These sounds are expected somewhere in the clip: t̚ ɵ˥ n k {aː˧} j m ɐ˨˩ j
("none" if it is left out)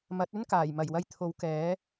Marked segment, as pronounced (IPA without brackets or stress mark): aː˨˩